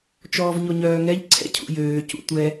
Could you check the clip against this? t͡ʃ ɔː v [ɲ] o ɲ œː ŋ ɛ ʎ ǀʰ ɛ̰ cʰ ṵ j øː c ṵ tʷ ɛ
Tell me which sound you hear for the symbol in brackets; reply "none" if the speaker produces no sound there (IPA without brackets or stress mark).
ɲ